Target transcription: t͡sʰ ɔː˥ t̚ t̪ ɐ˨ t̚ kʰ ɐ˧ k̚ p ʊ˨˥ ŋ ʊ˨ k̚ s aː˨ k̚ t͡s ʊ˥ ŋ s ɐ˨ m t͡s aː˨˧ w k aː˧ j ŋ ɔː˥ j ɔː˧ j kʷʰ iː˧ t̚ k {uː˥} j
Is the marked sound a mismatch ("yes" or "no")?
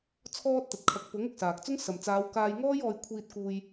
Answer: yes